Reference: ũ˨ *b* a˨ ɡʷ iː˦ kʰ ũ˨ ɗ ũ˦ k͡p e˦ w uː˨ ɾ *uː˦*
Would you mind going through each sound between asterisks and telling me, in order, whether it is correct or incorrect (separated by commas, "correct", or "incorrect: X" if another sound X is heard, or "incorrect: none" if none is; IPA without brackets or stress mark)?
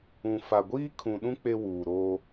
incorrect: f, incorrect: oː˦